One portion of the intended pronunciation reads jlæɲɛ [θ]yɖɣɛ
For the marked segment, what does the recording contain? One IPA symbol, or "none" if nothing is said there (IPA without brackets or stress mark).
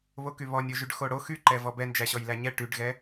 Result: ʈ